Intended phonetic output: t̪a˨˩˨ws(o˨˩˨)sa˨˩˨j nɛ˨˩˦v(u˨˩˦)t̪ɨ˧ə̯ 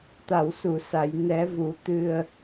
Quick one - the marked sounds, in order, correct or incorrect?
incorrect: u˨˩˨, correct

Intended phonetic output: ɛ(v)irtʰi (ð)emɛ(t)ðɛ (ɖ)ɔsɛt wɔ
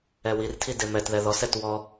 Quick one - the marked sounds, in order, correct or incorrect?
incorrect: w, incorrect: d, correct, incorrect: ð

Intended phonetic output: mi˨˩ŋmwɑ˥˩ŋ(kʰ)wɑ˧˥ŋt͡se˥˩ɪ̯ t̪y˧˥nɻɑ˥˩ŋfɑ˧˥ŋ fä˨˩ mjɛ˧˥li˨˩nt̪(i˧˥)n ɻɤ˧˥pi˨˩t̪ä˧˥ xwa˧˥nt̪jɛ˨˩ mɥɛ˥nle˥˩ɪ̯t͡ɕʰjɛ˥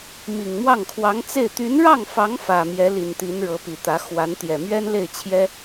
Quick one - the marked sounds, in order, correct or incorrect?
correct, correct

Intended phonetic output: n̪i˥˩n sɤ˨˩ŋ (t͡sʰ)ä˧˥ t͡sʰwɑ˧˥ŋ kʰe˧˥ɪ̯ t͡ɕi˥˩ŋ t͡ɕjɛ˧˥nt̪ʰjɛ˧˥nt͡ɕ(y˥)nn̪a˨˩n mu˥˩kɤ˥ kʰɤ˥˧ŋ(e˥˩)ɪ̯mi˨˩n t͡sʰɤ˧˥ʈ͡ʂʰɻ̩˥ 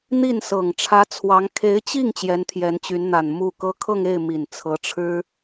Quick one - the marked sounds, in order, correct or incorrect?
incorrect: ʈ͡ʂʰ, incorrect: y˧˥, correct

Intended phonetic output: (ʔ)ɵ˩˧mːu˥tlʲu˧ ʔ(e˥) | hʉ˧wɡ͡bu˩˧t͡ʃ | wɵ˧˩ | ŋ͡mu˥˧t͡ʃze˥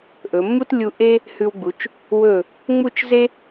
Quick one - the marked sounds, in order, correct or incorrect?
correct, correct

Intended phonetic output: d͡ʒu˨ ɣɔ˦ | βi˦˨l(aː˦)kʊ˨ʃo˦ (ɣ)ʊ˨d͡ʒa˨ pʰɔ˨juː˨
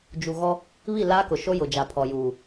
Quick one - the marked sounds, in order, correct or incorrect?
correct, incorrect: j

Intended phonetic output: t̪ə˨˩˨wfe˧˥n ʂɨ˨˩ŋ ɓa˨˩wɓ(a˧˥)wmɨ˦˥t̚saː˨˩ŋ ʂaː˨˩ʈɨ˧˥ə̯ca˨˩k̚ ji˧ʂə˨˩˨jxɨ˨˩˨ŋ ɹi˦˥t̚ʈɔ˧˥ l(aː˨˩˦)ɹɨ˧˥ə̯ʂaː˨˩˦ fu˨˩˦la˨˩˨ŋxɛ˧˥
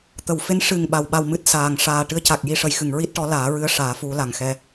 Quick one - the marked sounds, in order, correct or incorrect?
incorrect: a˧, correct

